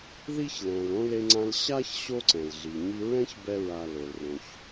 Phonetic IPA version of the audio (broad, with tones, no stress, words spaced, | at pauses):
ði˥çlɛ̃˨l õ˥le˦ŋ͡ǀã˦l ɕa˥çɕo˦ ǀɛ̃˩lɮi˩ɲi˦ ɹɛ̃˥ç bɛ˦ɹa˨lo˩l rõ˨ç